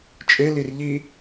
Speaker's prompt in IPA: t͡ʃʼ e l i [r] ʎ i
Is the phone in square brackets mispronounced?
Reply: no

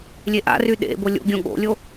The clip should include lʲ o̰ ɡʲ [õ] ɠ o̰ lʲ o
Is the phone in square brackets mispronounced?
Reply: no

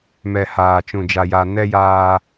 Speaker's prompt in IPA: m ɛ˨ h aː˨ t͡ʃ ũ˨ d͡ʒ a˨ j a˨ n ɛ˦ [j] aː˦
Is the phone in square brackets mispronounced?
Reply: no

